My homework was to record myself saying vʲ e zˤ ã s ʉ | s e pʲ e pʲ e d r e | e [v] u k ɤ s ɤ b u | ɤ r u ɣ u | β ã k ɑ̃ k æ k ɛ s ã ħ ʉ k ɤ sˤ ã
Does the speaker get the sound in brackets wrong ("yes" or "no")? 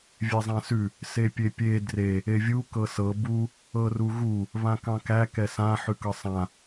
yes